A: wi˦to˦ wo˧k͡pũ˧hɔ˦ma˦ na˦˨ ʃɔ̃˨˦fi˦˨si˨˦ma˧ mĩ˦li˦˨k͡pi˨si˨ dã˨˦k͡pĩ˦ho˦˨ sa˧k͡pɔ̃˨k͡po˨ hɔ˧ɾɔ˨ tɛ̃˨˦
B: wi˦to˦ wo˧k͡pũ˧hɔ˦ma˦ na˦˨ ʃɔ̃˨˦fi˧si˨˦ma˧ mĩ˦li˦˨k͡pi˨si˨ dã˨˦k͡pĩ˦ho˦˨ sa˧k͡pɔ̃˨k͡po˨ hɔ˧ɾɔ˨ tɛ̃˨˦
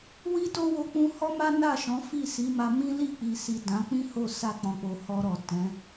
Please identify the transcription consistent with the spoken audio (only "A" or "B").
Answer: A